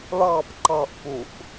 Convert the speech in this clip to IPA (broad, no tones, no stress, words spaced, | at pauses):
ɭɑp ǃɑʔpuʔ